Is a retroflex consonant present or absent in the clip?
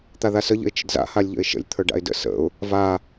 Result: present